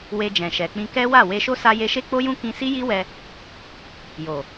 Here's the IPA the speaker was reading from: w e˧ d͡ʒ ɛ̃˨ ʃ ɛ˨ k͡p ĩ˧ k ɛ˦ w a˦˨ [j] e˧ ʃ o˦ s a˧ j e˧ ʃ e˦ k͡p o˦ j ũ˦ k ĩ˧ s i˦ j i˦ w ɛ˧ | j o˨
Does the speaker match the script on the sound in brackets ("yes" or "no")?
no